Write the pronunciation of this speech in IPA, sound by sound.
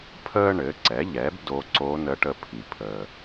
pʰ əː˧ ɳ ɘ˩˧ ǀ ɛ˩˧ ʎ ɛ˩˧ b d o˧˥ ǀ o˧˥ n ə˧˥ ʈ ə˧ pʰ i˩ pʰ əː˩

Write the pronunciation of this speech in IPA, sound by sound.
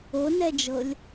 o n ɛ d͡ʒ ɤ lʲ

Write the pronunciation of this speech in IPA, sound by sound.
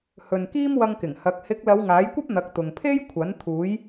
h ɵ˨ n k iː˥ m w ɐ˧ ŋ k ɪ˨˩ ŋ h ɐ˨˥ k̚ h ɪ˨˥ k̚ l ɐ˨˧ w ŋ aː˨˥ j kʷ ɐ˥ p̚ n̪ ɐ˨˥ k̚ t̪ ʊ˨ ŋ pʰ e˥ j kʷʰ ɐ˨˥ n t̪ʰ uː˨˥ j

